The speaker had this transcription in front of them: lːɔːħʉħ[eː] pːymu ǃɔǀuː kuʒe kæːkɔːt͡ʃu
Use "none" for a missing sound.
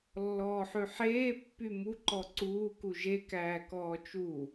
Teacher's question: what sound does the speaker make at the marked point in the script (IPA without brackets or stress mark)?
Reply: eː